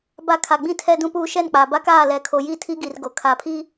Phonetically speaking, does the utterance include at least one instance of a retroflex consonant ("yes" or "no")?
no